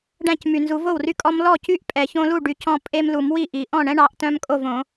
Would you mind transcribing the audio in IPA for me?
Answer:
ɖæ̃˥˩cmy˨nzu˨˦ vo˥˩wry˦kʼɔ˦m lɔ˥˩cy˥˩ʔ pʼɛ˨çõ˦lu˥˩ ɖy˨˦c ɔ̃˦pʼe˦mlu˨˩˦mwi˥˩ ʔi˨˩˦ʔɔ̃˥˩ ɳɛ̃˦ ɳɑ˨˦ʔtœ̃˦m kʼo˥˩v õ˨˩˦

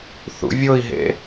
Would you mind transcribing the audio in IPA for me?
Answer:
θṵvʲoi̯ɦḛ

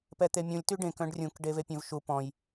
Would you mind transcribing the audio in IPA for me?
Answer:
pɛt̪emʲũlʲ tyɖẽk œ̃ɖrʲũk ɖevepʲœ̃vʃu pɔ̃j

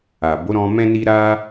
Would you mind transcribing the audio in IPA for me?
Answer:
a˨bo˨˦ɾɔ̃˧ mɛ̃˦ni˦ ɾa˦

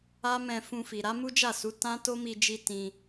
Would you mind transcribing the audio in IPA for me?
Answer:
a˦mɛ̃˧ fũ˧fi˨ ɾa˨˦mu˦d͡ʒa˦˨su˨˦ tã˦ to˦mi˧d͡ʒi˧ tĩ˧

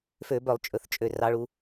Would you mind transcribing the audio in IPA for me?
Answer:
fø˧˩˧bœ˧˩˧lˠt͡ʃʼɵ˩˧˩θt͡ʃʼø˩˧˩ rɑ˨˦ɭu˨˦

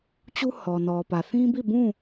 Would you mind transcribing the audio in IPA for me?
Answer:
t͡ɕu˦ hɔ˨nɔ˨pä˨ θĩ˦bi˦˨bũ˦˨

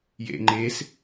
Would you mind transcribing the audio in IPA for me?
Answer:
jḛŋ͡ǃes

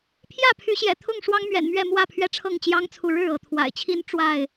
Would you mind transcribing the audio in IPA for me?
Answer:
pʰjä˥˨pʰy˨˦ɕjɛ̰˨˩ t̪ʰʊ˥˨ŋʂwɑ˦ŋmɥɛ̰˨˩nmɥɛ˥˨ mwä˥˨pʰɥɛ˦ʈ͡ʂʰɤ˥˨ŋ t͡ɕjɑ˦ŋt͡sʰu˨ ɻɻ̩˥˨ɤ˥˨ t̪ʰwa̰˨˩ɪ̯t͡ɕʰi˦n ʈ͡ʂwa˥˨ɪ̯

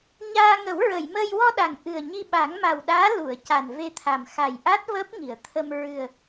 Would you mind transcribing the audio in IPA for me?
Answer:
ɲaː˧ ŋə˨˩˦wɹə˨˩˨jməː˧j wɔ˧ ɗa˨˩ŋ ʔɨ˨˩ə̯ɲi˧ ɓa˨˩˦ŋma˨˩wɗaː˧˥ lu˨˩˨ə̯ ca˨˩nve˧t̪ʰa˨˩m xa˨˩j ʔa˦˥t̚ vəː˦˥p̚ŋi˨˩˨ə̯t̪ʰə˧m ɹɨ˨˩ə̯

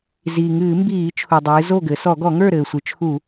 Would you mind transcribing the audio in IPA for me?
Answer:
ziː˩ŋɨː˧˩˧mbiː˧˩˧t͡ʃʰu˩ dˤɨː˩˧zo˥˨ɡɘ˩˧ sɔ˧˩˧ɡɔ˧˩˧ŋə˞˥˨ ɾɘː˩sʷɨ˩˧t͡ʃʰu˧˩˧

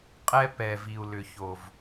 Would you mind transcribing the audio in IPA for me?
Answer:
qʼɛ˦pɛ˨v i˨u̯lʏ˨ ço˨v

